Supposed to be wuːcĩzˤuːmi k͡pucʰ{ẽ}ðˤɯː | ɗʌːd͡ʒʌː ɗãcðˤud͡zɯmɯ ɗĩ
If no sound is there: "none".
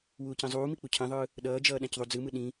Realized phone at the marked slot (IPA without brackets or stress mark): ĩ